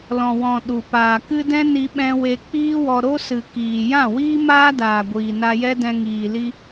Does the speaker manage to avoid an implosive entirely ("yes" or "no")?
no